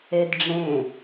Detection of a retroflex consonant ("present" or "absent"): present